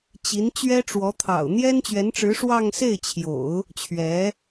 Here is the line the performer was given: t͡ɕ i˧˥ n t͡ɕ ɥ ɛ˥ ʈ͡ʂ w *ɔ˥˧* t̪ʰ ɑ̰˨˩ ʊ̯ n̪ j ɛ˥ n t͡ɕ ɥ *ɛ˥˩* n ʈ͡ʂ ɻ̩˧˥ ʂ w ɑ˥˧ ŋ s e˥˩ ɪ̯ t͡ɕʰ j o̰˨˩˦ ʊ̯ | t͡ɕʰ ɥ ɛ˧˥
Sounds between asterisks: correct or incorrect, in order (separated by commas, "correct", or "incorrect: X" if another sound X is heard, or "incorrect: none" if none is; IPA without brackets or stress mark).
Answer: incorrect: ɔ˧˥, incorrect: ɛ˧˥